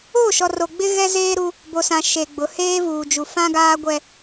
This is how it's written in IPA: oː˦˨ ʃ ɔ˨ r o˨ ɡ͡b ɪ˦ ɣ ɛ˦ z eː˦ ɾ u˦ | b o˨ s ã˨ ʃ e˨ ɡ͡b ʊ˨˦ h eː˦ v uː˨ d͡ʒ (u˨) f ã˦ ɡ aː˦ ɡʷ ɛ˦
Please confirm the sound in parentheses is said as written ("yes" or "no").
yes